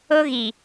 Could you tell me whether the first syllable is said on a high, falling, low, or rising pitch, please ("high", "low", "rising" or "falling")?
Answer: high